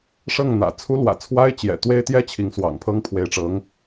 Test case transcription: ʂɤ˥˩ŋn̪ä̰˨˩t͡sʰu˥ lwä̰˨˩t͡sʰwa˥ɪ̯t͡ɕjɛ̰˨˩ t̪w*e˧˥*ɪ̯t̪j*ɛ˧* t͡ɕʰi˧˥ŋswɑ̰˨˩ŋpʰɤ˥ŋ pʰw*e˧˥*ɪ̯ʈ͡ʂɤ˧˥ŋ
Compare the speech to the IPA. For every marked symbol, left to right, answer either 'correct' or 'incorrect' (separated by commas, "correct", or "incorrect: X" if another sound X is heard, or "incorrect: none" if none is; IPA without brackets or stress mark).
incorrect: e˥, incorrect: ɛ˥, correct